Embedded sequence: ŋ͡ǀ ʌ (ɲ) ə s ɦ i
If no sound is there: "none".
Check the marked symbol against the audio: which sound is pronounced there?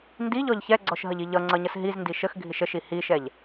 ɲ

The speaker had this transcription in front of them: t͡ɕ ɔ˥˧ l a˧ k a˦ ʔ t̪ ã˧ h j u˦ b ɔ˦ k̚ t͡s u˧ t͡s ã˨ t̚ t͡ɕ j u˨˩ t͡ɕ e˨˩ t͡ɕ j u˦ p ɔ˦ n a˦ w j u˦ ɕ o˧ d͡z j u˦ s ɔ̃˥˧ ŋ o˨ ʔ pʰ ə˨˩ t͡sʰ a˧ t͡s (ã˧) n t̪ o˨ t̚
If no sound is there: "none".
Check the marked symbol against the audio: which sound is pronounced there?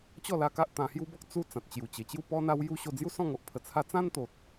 ã˦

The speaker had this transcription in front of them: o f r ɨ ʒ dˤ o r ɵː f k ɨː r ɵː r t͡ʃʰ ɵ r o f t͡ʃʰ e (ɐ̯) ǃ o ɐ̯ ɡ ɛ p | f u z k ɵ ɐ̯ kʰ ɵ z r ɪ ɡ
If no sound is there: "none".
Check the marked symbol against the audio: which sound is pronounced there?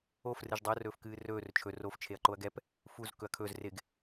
ɐ̯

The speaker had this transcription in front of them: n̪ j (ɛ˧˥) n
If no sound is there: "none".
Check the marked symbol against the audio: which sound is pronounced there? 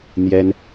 ɛ˥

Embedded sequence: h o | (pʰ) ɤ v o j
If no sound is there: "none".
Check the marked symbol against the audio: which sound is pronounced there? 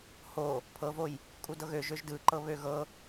pʰ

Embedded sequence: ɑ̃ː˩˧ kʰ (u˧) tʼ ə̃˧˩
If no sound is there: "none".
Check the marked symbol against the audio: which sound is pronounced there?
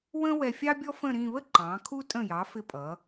u˧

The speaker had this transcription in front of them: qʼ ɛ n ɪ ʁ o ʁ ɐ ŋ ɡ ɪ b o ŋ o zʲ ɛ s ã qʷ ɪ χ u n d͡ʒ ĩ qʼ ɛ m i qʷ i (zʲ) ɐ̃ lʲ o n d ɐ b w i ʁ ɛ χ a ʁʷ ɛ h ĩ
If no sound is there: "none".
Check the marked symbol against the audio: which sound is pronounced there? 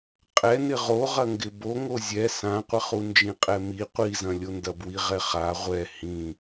z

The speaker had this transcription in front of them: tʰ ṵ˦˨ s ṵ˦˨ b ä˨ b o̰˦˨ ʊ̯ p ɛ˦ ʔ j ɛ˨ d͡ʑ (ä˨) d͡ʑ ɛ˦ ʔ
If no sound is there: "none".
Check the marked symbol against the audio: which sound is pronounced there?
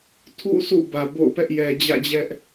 ä̰˦˨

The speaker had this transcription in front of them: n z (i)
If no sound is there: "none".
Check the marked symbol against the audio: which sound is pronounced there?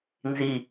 i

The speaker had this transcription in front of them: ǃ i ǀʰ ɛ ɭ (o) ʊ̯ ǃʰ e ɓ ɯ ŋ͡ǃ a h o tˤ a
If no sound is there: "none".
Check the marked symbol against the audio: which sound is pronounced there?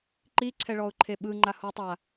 ɔ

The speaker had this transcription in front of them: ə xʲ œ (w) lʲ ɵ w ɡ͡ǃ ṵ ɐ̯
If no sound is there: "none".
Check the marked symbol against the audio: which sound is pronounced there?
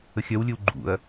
w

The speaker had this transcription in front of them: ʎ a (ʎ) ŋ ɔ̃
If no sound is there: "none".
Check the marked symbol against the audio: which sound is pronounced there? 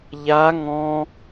none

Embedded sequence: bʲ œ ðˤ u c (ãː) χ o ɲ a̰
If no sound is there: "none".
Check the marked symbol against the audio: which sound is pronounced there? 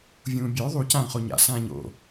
ãː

